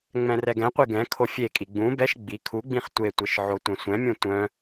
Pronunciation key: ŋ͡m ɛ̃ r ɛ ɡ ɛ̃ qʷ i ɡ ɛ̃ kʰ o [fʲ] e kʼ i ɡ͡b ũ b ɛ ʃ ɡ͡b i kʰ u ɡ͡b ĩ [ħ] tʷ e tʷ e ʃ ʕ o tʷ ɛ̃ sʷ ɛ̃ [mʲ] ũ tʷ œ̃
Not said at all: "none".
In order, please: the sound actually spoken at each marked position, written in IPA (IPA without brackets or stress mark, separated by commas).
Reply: fʲ, χ, mʲ